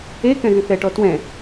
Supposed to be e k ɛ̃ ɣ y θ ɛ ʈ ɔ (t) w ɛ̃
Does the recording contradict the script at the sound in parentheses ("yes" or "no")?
no